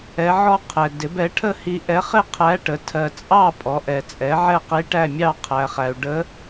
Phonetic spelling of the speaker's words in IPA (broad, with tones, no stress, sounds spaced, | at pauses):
ɛ˧˥ ʕ ɔ˥ qʰ ɛ˨ d ɪ˩˥ b ɛ˩˥ ʈʰ ə˥˨ h i˧˥ ʔ ɛ˧˥ χ ɪ˥˨ qʰ æ˧˥ ʈ ə˩˥ tʰ ɜ˨ t͡sʼ ɑ˥˨ pʼ ɔ˩˥ ʔ ɛ˨ t͡sʼ ɛ˩˥ ʕ ɛ˥˨ q i˧˥ ʈ æ˥˨ mʲ ɑ˥˨ qʰ æ˨ χ æ˨ u̯ ɖ ə˧˥